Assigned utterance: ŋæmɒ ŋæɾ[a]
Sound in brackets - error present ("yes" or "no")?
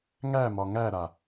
no